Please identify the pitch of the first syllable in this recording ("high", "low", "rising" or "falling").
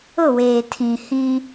falling